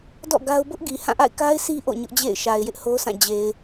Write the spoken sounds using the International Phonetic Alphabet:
d ɔ̰˦˨ ɡ a˦ ʊ̯ b ʊ˦ ʔ ɡ i˨ h ã˦˨ ʔ a̰˦˨ ɪ̯ k a˦ ɪ̯ s i˦ ʔ o̰˦˨ ɲ ʊ˦ ʔ d͡ʑ ḛ˦˨ ɪ̯ ʃ a˨ ɪ̯ j ɪ˦ ʔ h o˦ s ã˦˨ d͡ʑ e˨ ɪ̯

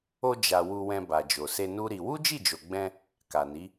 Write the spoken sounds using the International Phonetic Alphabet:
o˧ d͡ʒ a˨ w u˧ w ɛ̃˧ b a˨ d͡ʒ o˨ s e˧ n u˦ ɾ i˧ w u˦ d͡ʒ i˦˨ d͡ʒ o˨ ɡ͡b ɛ̃˧ | k a˨ n i˨˦

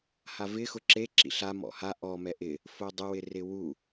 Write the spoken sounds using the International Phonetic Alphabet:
h a v ɪ x ʊ ǁ e ǁ ḭ ɬ a m ɔ̰ h a ʔ ɔ m ɛ ʔ ɪ | f o dˤ ʊ w ɪ r ɪ w u

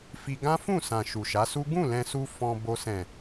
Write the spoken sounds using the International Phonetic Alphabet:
f i˧ ɡ ã˦ f ũ˦˨ s ã˨ ʃ u˨ ʃ a˨˦ s u˦ ɡ ũ˦˨ l ɛ̃˧ s u˧ f ɔ̃˧ b o˧ s ɛ̃˨

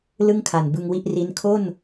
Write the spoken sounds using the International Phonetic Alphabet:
l ɯ˥˩ ŋ kʰ a˨˩ n b ɯ˧ ŋ w i˥˩ ʔ r i˦˥ n kʰ o˥˩ n

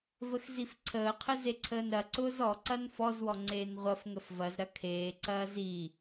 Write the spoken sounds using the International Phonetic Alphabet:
v ə x z i f ǀʰ əː qʰ ə z e ǀʰ əː n ɾ ɐ ǀ ʊː z ɔ ǀ ɐ n f ɔ z w ɔ ŋ͡ǀ eː n ʁʷ ɐ f ŋ ə f v ɐ z ɾ ɐ kʰ eː ǀ ɐː z i

